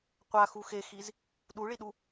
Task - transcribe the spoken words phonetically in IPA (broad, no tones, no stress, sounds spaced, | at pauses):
qʷ a x u x e x i z | ɗ u ɭ i ɗ u